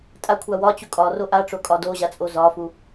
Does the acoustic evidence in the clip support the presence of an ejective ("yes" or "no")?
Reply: yes